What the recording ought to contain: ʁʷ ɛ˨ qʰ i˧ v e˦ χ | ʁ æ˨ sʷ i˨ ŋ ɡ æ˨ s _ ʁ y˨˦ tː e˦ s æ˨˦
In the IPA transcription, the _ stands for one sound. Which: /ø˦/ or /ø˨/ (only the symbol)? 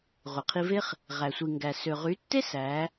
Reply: ø˨